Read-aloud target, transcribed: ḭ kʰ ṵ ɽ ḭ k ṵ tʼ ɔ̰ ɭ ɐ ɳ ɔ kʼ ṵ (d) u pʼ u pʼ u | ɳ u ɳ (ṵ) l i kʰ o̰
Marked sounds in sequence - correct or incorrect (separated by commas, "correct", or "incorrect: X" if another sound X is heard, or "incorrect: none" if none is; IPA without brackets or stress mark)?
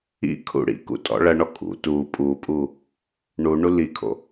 incorrect: t, incorrect: u